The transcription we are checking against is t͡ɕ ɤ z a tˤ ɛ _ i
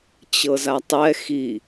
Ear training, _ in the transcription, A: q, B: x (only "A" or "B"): B